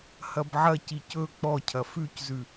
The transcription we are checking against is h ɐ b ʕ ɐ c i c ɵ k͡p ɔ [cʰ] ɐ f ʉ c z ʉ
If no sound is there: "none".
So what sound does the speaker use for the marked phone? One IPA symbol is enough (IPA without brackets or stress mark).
cʰ